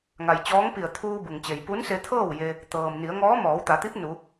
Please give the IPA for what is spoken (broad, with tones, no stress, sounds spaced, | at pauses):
ŋ a˩ j t͡ɕ ɔː˧˥ ŋ p i˧˩ ə̯ t̪ʰ uː˧ b u˩ ŋ t͡ɕ e˩ j p u˧˥ n s e˧ t̪ʰ ɤː˥˨ w j e˧ | t̪ ɤː˩ m n i˩˧ ə̯ ŋ ɔː˧˥ m ɔː˩˧ w t̪ a˩˧ t̪ i˧˥ p̚ n u˩˧